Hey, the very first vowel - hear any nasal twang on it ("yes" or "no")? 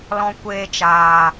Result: yes